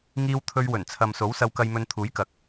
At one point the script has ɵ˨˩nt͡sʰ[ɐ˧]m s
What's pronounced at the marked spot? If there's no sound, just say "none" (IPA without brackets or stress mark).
ɐ˨